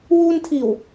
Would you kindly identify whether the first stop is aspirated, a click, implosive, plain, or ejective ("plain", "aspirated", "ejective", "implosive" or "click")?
aspirated